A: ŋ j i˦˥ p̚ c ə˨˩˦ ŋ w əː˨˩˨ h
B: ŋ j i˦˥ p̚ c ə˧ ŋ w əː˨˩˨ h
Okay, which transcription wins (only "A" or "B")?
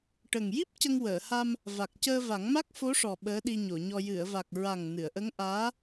B